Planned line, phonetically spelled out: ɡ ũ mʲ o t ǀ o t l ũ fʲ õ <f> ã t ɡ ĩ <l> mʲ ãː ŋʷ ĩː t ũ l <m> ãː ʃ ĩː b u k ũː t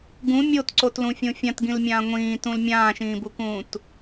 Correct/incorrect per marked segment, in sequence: incorrect: fʲ, correct, incorrect: mʲ

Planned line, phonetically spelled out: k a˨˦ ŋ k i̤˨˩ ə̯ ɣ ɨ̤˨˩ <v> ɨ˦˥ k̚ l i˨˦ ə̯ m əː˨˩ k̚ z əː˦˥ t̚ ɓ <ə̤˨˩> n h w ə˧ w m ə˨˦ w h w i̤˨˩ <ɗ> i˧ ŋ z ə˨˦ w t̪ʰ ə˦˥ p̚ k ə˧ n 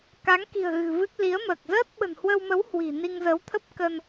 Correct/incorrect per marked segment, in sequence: correct, correct, incorrect: n

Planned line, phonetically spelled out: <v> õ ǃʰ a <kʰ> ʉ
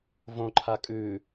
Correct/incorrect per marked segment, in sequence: correct, incorrect: kʼ

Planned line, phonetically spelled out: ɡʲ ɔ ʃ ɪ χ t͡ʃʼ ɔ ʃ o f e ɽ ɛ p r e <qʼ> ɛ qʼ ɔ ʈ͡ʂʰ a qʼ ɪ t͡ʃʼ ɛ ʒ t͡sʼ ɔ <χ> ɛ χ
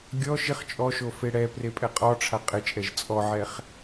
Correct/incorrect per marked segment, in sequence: incorrect: pʼ, incorrect: ʕ

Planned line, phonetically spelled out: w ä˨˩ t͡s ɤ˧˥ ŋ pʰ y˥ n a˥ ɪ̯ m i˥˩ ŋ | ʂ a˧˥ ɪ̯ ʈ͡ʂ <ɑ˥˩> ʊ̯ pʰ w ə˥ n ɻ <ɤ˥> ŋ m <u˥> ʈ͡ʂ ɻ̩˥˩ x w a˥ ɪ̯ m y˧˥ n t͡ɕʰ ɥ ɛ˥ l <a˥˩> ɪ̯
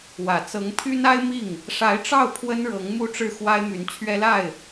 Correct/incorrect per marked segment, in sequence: correct, incorrect: ɤ˧˥, correct, correct

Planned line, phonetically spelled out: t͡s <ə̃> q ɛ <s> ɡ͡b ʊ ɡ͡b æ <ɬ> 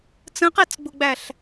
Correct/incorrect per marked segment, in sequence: correct, incorrect: t͡s, correct

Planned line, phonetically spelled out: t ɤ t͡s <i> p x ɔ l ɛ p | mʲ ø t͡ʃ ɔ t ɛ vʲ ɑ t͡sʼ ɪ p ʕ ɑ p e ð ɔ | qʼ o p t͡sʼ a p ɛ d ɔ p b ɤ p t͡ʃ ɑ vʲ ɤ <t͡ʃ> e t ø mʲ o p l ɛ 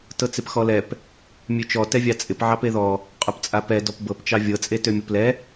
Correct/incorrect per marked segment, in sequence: incorrect: ɪ, incorrect: t͡sʼ

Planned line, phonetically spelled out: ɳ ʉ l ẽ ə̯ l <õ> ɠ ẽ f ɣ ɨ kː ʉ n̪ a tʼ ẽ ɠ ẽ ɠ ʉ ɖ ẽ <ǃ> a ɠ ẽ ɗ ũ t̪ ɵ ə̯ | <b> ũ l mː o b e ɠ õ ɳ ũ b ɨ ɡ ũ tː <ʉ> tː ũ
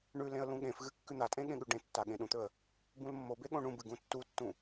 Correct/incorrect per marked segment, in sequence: incorrect: ũ, incorrect: tː, correct, incorrect: u

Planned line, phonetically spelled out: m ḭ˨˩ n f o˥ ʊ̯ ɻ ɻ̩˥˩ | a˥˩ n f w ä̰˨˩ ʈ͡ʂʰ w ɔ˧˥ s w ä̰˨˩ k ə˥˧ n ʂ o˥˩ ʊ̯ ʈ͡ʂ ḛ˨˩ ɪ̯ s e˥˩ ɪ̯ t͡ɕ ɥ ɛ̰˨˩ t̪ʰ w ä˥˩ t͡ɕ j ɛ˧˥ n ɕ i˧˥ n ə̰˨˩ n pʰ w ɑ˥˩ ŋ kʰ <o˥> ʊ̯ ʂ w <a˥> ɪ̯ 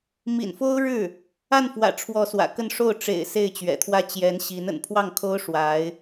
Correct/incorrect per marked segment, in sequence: correct, incorrect: a˧˥

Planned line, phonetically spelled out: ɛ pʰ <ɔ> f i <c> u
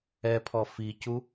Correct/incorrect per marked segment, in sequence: correct, correct

